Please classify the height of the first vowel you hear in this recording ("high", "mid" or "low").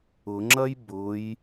high